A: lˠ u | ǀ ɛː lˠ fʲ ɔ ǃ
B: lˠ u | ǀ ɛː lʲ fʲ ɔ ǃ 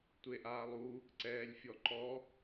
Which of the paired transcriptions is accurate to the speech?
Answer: B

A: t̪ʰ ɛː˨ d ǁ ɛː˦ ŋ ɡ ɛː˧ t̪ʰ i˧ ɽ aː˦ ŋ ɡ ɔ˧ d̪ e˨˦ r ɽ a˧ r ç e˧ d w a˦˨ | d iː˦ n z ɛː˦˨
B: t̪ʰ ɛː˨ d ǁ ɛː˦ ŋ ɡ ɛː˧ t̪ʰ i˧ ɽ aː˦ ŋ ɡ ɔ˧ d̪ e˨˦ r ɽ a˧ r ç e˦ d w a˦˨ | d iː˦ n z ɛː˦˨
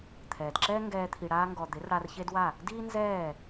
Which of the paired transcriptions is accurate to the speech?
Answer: B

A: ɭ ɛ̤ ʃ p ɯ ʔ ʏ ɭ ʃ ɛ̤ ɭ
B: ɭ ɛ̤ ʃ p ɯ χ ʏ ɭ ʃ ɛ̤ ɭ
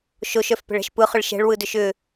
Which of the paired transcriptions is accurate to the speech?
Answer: B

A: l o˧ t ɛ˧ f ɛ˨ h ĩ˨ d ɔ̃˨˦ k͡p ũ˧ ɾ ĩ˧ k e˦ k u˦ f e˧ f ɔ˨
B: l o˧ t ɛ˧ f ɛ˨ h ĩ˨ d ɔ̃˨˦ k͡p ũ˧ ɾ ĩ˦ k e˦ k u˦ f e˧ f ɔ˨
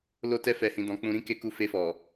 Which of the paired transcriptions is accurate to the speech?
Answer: B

